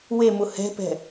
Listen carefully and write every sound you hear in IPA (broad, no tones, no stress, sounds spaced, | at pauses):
w e m ʊ h ɛ̤ p ɛ̤